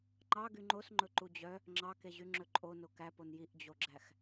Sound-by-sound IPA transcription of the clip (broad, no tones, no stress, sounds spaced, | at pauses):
ŋ͡ǃ ɑ ɡ y ŋ͡ǃ o s ŋ͡ǃ ɵ ǃ u d͡ʑ œ | ŋ͡ǁ ɑ k e ʑ y ŋ͡ǁ ɵ ǃʼ o n o k æ p o n j i ʔ d͡ʑ o ɡ͡ǁ æ x